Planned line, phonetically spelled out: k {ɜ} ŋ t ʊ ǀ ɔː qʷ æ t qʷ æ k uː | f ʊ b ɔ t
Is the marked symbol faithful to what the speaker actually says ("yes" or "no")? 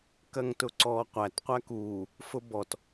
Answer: yes